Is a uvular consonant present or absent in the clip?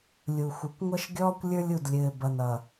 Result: absent